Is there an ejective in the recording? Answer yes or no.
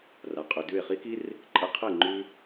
yes